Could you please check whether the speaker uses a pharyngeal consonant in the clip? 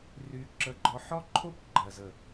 yes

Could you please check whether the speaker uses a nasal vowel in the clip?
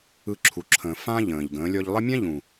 yes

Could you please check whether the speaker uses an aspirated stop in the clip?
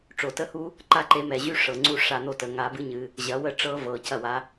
no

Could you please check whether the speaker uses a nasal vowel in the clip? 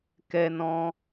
yes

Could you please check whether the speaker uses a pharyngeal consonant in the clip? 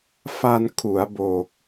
no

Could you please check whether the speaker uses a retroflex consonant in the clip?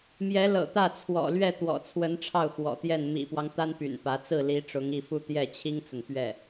yes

